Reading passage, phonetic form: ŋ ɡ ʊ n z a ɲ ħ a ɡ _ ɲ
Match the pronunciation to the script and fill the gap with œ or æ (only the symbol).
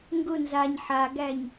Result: æ